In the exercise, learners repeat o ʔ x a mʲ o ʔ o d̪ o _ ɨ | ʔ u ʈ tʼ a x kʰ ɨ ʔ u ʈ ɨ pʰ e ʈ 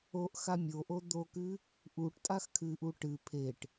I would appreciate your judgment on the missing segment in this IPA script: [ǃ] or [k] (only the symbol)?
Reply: k